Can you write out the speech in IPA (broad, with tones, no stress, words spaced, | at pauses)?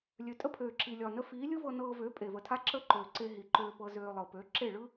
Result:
lʲø˨tʼə˦pʰøː˨ǁi˨ lʲɒ˨nə˧ fiː˨˦lʲɯ˦vɤ˧ nɤː˧vø˨˦ pʼe˨və˨tʰa˦ ǁə˦ǃø˨ǀe˧ ɦi˨ǃøː˧pɤ˧ zøː˧ lˠɤ˨pø˨˦ǁe˦˨ ɭɯ˦